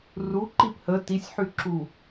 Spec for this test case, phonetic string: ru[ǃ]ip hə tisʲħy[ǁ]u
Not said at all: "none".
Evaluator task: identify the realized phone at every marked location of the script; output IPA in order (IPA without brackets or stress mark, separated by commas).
ǃ, ǁ